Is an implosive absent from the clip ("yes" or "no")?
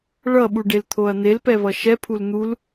no